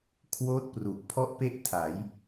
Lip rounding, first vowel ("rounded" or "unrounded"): rounded